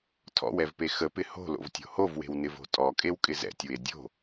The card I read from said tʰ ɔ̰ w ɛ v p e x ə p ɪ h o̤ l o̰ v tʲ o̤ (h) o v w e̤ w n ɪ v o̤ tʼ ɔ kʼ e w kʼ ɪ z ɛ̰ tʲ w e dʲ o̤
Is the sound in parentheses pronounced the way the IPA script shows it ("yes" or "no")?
yes